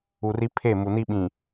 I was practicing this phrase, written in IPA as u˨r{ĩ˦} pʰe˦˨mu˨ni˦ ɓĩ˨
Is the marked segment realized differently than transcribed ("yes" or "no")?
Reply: yes